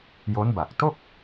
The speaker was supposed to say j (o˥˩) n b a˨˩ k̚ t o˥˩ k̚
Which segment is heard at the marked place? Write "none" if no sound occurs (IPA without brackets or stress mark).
o˦˥